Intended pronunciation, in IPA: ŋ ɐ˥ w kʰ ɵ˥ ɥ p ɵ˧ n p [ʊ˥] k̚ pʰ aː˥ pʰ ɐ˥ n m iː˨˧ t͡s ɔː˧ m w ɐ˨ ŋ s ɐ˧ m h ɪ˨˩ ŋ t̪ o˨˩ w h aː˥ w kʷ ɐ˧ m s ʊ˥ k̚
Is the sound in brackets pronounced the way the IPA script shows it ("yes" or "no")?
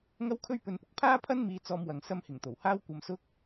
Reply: no